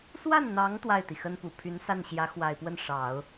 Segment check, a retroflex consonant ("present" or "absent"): present